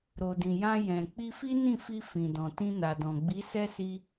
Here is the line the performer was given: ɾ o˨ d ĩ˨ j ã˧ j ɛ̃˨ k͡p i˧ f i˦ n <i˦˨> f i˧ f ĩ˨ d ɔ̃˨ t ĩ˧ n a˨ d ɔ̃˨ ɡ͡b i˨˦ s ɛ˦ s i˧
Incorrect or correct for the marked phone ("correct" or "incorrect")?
incorrect